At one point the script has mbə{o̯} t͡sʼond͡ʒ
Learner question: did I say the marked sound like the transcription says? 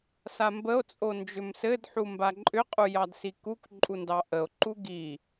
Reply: yes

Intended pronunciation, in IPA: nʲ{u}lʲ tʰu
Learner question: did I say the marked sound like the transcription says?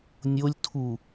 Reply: no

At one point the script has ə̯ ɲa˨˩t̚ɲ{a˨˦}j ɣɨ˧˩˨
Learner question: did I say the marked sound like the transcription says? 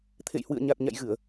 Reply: no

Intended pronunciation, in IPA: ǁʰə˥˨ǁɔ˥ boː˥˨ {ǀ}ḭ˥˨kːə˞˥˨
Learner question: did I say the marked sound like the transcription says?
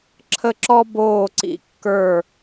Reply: yes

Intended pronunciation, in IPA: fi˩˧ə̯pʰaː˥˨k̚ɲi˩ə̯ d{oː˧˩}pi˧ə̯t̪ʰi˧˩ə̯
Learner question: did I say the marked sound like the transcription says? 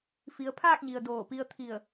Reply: yes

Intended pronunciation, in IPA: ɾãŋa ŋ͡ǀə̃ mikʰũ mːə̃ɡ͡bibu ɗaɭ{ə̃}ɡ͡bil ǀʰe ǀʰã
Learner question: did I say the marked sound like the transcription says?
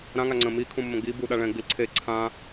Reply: no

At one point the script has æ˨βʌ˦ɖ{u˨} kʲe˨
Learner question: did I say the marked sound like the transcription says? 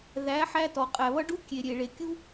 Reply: no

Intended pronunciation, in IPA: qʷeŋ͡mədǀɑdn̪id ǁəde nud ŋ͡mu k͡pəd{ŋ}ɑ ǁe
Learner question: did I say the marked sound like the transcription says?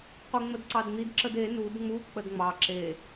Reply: no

